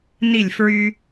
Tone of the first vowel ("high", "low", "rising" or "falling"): falling